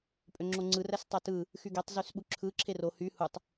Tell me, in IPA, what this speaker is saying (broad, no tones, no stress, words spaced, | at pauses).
pʼøŋ͡ǁoŋ͡ǀɯ ræstˤætɯ | xyɡetˤ zysɓuǁʰɯ ǁʰero hy hutˤ